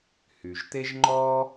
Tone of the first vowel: low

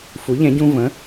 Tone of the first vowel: rising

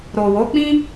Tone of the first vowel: low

